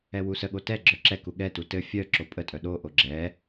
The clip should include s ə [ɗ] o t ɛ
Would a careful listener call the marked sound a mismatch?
yes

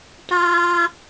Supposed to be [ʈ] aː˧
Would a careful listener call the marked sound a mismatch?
no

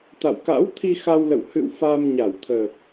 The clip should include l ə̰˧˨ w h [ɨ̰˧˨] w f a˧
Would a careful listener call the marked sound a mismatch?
no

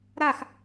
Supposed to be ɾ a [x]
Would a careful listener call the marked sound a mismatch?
no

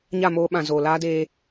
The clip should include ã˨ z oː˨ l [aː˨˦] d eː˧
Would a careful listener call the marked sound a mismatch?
yes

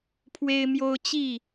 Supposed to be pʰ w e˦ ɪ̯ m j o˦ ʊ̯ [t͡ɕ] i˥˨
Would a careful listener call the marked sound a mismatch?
no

